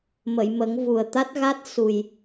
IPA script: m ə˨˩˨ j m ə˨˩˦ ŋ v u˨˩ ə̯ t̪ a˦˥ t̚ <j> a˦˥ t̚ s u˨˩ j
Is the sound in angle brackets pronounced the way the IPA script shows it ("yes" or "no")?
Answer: no